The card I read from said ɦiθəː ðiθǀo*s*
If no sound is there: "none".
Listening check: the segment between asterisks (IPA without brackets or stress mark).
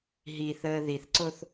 θ